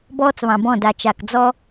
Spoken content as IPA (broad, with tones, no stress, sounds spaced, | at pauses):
b ɔː˦ t͡s β ɑ̃˨ b ɔ̃˦˨ d a˨ t͡ʃ a˨ k d͡z ɔ˦